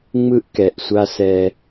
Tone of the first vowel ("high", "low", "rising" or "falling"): high